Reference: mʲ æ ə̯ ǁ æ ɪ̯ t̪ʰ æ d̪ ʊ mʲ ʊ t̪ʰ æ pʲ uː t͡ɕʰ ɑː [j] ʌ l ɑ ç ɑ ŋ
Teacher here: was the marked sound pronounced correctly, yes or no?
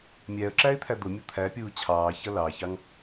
no